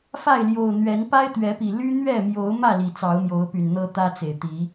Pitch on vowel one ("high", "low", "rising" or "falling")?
falling